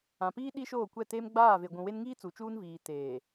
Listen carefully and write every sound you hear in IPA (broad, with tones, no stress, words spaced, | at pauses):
ã˨piː˦ ɗi˦ʃoː˦˨kʷɛ˦˨te˦m ɡ͡baː˦˨ve˨ɡʷũ˨ we˦n ŋiː˦ t͡su˨t͡ʃuː˦nviː˨ teː˨